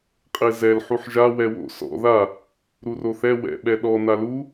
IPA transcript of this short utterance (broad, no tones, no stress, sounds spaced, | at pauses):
qʼ e z ɛ l ħ u ħ ʒ a w ɛ w o̰ s ɔ̰ ð a | ɾ u r o θ ɛ w ɛ̰ ɓ ɛ ɗ ɔ n a l u